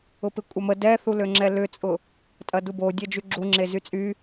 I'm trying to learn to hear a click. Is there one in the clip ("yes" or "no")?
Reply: yes